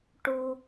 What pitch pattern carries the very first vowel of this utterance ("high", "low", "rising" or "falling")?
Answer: high